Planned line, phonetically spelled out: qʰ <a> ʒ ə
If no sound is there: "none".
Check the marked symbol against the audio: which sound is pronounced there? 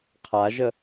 a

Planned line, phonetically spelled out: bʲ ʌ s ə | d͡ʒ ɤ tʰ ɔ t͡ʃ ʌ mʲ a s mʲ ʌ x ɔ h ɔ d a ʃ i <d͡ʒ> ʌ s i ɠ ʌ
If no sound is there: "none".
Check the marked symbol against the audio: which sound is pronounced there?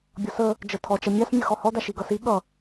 ɡ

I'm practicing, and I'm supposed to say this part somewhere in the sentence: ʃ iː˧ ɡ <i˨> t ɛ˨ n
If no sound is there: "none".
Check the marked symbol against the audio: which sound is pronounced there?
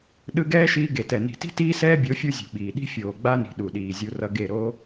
e˨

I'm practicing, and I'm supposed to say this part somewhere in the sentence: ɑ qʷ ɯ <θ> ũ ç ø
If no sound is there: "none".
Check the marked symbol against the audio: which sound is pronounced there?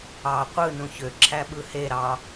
n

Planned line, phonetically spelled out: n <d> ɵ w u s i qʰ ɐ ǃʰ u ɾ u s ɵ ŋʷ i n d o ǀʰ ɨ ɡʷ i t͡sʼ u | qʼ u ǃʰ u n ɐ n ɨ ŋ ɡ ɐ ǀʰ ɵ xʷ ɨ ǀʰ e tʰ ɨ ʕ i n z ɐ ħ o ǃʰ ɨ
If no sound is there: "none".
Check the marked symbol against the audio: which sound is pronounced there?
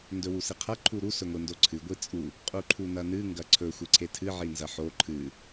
d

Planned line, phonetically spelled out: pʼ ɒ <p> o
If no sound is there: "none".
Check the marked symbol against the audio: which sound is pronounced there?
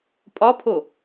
pʰ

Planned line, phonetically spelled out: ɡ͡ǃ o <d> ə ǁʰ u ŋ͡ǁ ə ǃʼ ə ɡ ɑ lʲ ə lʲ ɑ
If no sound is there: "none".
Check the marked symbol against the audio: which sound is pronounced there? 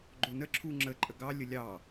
n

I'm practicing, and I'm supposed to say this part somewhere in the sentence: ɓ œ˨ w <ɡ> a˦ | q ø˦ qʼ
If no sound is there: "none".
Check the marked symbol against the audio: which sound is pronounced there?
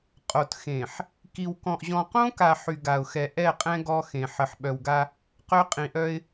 ɡ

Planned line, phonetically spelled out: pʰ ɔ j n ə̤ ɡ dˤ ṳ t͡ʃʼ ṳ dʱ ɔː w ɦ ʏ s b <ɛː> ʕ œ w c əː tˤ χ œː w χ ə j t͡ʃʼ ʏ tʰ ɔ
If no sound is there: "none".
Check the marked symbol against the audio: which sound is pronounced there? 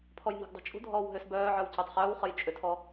œː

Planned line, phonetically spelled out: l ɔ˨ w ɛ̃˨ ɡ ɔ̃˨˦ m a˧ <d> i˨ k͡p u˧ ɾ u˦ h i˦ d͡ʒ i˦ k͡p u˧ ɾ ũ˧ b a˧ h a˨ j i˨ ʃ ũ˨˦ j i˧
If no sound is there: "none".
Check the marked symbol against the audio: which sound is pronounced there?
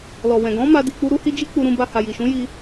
d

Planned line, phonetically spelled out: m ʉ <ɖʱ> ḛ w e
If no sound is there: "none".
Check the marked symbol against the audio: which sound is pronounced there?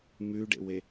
ɖ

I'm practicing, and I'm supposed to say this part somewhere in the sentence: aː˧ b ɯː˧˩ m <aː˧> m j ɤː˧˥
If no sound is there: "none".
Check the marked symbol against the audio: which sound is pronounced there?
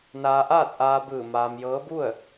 aː˧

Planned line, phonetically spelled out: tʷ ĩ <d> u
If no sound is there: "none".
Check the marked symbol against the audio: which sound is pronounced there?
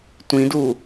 d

